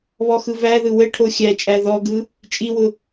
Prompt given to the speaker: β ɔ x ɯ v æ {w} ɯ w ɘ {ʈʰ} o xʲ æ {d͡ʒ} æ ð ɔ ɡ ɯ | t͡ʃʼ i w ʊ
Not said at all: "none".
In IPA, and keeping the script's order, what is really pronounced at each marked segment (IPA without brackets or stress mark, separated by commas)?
ð, ʈʰ, t͡ʃʼ